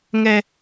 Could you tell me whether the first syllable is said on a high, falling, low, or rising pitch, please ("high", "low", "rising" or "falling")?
high